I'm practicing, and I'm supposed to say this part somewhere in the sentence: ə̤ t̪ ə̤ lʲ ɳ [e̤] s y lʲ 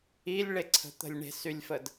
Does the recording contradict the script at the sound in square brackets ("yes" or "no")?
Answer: no